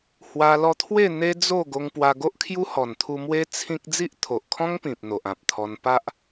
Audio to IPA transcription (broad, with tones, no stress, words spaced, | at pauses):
hwa˧lɔ˧t̪ʰwe˥˧ n̪e˦d͡zo˥˧ ɡo˧ŋpwa˧ɡo˦ʔ kʰju˦hɔ˨˩nt̪ʰu˧mwe˦ t͡sʰĩ˦k̚ d͡zi˦ʔt̪ʰo˨ʔkʰɔ̃˦ŋ pĩ˨p̚n̪o˨ʔã˨p̚t̪ʰɔ˧n pa˦ʔ